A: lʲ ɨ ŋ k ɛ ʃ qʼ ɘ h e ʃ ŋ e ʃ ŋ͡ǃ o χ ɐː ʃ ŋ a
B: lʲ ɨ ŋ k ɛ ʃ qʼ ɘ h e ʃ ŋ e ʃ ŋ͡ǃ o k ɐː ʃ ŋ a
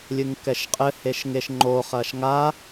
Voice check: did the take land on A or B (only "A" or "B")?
A